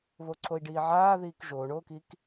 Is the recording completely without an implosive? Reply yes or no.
yes